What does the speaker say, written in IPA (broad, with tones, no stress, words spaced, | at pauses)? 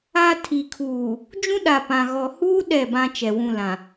a˦ tʰi˨kʰuː˨ | d͡ʒũ˦ɗa˨pã˨ ɣɔ˨huː˦ ɗɛ˦˨bã˦ t͡ʃɛ˨wũ˦˨lã˨